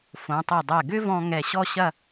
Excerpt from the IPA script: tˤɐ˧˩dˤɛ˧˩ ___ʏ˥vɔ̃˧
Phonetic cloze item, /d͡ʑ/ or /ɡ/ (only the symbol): ɡ